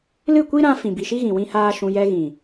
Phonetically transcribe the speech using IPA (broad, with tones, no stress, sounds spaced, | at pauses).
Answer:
l ɨ˦˨ kʷ i˦ ɾ ã˧ f ĩ˨ b i˨ ʃ i˦ ɣ ĩ˨ w ĩ˦ h aː˦ ʃ ũ˧ j ɛ˧ ɣ ĩ˨